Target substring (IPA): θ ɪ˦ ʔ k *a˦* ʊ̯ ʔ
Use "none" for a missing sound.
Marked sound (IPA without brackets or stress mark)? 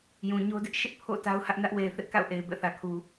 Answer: a̰˦˨